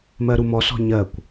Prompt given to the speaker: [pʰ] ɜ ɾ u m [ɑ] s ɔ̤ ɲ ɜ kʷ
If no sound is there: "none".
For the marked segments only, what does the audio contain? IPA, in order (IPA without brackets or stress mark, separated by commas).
m, ɔ